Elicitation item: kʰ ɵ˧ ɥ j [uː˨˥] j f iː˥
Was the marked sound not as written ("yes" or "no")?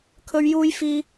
yes